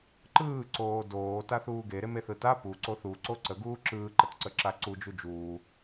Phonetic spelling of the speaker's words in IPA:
ǃ ɯː ǀ oː d oː t a θ uː ɡ e ɾ e m e θ ɯ t a p u ǀ o θ u ǀ o ǀ ə ɡ uː ǁ ɯː ǃ ə t ǀ ə ǁ a ǀ u d͡ʒ u d͡ʒ uː

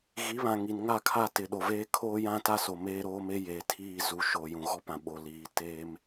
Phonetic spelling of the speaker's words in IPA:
ɣ i˨˦ β ã˨ ŋ i˨ n ŋ a˦˨ kʰ a˦˨ t ɪ˨ ɗ o˨ v eː˦ kʰ oː˦ j ã˦ t a˦ s o˨ m eː˦ ɾ oː˦ m e˦ j eː˨ tʰ iː˦˨ z u˨ ʃ oː˨ j ũ˨ ɣ ɔ˦ p ã˨ ɓ o˨ l iː˨˦ t eː˦ m

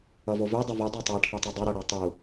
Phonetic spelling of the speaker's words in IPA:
ʌ v o v ø dˤ ɛ v i dˤ ɛ tˤ a ʈʰ u tˤ ø dˤ ø ɾ ʌ ɽ a tˤ u

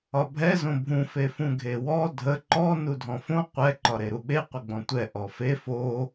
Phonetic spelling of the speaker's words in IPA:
ɒ bʱ ɛ z õ bʱ ũ f e f ũ ɡʱ e w ɔ dʱ ə ǃ ɔ n u dʱ ɔ̃ f õ qʷ ɛ ǃ ɒ ɾ e ɾ u ɓ e qʷ ə ɡ͡b ɔ̃ tʷ ɛ ʔ ɔ f e f o

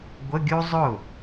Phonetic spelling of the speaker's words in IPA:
ɡʷ ə˧˥˧ ɡʲ u˥ zˤ ʊ˥˩

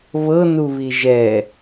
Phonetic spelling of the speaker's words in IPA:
β ɤ n u β i ʒ ɛ

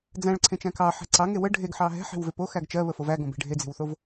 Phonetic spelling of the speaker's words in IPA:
d͡z æ̃ ɭ ǀʰ ẽ t͡ʃ æ̃ k ɑ ħ ɛ̤ ǀ ɑ ŋ e w ə ɖʱ e ɡ ħ ɑ ɦ ɛ̤ ħ e̤ w v e p o x æ ɡ t͡ʃ ɜ β ə f o v æ ɡ õ b e̤ ɖʱ e d͡z e̤ w θ o v

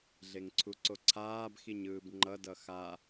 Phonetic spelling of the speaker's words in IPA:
ɮ e ŋ ǀʰ u ǀ o ǀʰ aː b x i ɲ ɯː b ŋ͡ǃ ʌ d ʌ x a

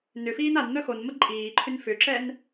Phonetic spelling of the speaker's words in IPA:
n ʏ f iː n a n n̪ œ x o n m ə ǃʼ iː ǃʰ ʏ n f ʏ ǁ ɛ n

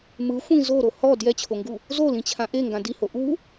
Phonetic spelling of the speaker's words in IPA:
m ɯ xʷ ĩ z o ɾ o h ɔ d j ɛ t͡ɕʰ o ŋ ɡ u | z o l ĩ t͡ɕʰ ã ʔ e ŋ ɡ ã d i h o ʔ u

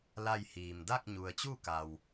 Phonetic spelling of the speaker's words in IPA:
l a˥˨ j h iː˩ m d a˥˨ k̚ ɲ u˩ ə̯ t͡ɕ u˥˨ k a˩ w

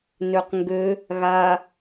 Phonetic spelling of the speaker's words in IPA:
n ø q ŋ ɡ ø | ɣ a

